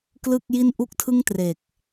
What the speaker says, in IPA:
klɯ˥˩k̚ji˥˩n ʔu˥˩k̚tʰɯ˥˩ŋ tre˨˩k̚

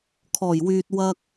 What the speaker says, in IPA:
kʰɔː˨˩jwyː˨t̚ wɐ˧k̚

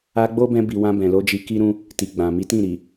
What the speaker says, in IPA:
a˧ɡ͡bo˦bɛ̃˧bi˨ wã˧bɛ̃˨lo˧d͡ʒi˧ ki˦ɾũ˦ | ti˨ɡ͡bã˨ mi˨˦tĩ˦˨ɾi˨

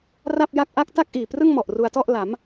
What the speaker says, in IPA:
ra˥˩p̚ja˥˩k̚ ʔa˥˩k̚ ta˥˩k̚ʔiː˨˩prɯ˥˩ŋmɔ˨˩ʔ ru˧a̯tɔ˥˩ʔ la˩˦m

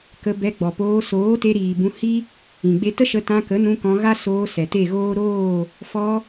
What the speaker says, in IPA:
kə˧bɛ˧ ɡ͡bɔ˨poː˧ soː˨˦te˧ɾiː˨ bũ˧hi˦ | ĩ˨ɡ͡be˦ tə˦ʃə˧ tã˧kə˨˦nũ˧ kɔ̃˧ɣa˦ soː˧ sɛ˨te˦˨ɣoː˦ ɾoː˦˨ | fɔ˧

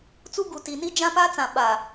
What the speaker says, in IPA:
t͡su˦ɡu˨ti˨ ni˦d͡ʒã˦pa˦t͡sã˨ ɓa˨

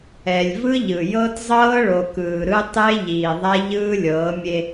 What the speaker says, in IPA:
ɛ˨lʲvɯ˦ʎɯ˨ jɤ˦tzˤɤː˦ɭo˨kɯː˨ ɾɯ˦ tˤe˦ʎiː˨ ðˤa˦ʎɯː˦lʲɤː˨˦ mʲe˦

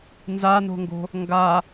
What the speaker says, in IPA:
nzano̤ŋɡo̤ | ŋɡa

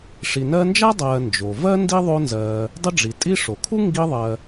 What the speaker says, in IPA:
ʂi˨nɜ˦nd͡ʒa˥dˤɜː˨ nd͡ʒo˩vɜ˥ ndi˥ðˤo˦nzɜː˨ | dˤɪ˦ɖ͡ʐi˩ tʼi˦ʂo˩kʰu˥ ŋɡi˦ðˤɜ˨

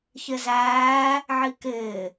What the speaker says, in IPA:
çɪzæː | ʕikɪː

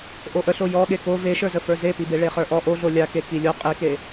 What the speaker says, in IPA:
ʔoʔəɬo jɔ ɠeko veʃə˞zəfə˞ zepibe ɭeχə˞ʔɔ ʔoɮo lʲake kilʲo qʼike

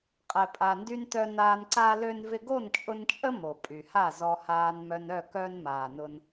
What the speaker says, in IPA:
qʼɛ˨ pʼa˨ndy˧ntœ˧naː˧n ǀa˦lø˦n vɪ˧ɡo˦˨nt͡ʃʼʊ˧nt͡ʃʼə˦ mo˨pʼy˨ha˦˨zɔ˧ haː˧nmœ˧nœ˦˨kœ˦n maː˨nʊ˧n

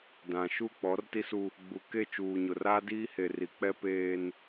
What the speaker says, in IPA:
dã˨ʃu˦˨ k͡pɔ˨˦rti˦su˦ | ɡ͡bu˨ke˦˨ t͡ʃuː˨ɲʊ˨raː˦ diː˦he˨ri˨k͡pɛ˦ peː˦n

